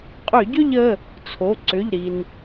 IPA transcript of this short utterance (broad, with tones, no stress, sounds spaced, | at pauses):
qʼ ʏ˧˩˧ ɟ ʏ˥˧ ʎ ə˩˧˩ | t͡sʰ o˩˧˩ ǀ ʏ˩˧˩ ʎ ɾ i˩ n